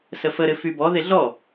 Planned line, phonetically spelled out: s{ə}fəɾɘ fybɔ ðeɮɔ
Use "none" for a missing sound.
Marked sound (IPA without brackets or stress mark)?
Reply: ə